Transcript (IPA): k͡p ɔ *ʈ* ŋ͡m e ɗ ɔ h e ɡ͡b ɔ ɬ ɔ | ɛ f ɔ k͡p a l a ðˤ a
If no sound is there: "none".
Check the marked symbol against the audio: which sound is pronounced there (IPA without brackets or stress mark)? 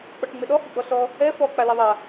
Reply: ʈ